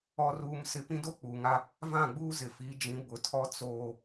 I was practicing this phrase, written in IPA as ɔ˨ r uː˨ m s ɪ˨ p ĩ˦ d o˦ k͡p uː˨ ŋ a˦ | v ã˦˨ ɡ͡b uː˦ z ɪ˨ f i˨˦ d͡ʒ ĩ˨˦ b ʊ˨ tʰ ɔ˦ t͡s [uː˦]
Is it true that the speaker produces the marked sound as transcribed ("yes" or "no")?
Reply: no